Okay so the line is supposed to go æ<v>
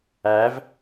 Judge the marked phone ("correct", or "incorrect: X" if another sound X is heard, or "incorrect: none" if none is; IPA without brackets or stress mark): correct